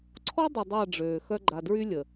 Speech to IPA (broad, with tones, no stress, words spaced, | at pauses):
ǀʰɔ˦dˤə˨ dˤa˦˨ɖ͡ʐøː˨xœ˦ ɡ͡ǃa˨dɹy˦lʲə˨